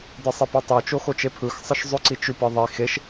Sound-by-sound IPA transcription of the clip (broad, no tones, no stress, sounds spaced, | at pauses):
d ɨ sˤ e p e tˤ o t͡ʃ o x o t͡ʃ e pʰ ɯ x sˤ ɨ ʃ zˤ ʉ ǀ i t͡ʃ ʉ p ɯ ðˤ i x e ʃ